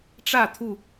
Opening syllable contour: falling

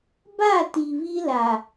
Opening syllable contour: falling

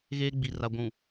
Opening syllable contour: high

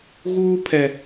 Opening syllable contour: high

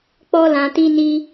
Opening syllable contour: high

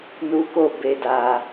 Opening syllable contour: high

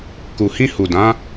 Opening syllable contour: low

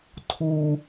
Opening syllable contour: low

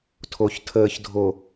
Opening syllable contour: low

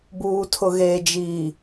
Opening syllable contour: low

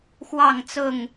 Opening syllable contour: falling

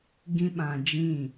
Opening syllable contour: high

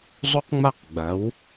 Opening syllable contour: high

